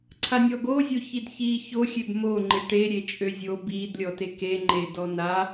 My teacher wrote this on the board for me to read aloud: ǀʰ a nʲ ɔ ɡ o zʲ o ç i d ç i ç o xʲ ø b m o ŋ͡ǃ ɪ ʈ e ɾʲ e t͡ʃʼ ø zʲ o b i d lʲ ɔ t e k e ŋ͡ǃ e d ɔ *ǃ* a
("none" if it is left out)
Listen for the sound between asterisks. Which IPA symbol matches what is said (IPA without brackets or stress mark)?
n̪